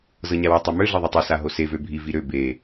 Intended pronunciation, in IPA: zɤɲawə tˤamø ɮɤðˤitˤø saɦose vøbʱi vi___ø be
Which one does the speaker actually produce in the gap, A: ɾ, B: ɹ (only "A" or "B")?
A